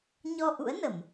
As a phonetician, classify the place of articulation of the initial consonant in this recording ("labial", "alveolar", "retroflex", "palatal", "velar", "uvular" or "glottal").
palatal